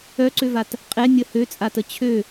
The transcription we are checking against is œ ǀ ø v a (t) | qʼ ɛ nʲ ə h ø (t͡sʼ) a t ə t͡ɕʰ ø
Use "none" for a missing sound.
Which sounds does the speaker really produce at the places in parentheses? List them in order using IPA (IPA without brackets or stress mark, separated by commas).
t, t͡sʼ